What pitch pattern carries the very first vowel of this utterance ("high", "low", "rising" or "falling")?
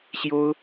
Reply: high